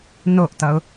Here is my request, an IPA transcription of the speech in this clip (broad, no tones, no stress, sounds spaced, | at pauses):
n o ʔ t ʌ ʊ̯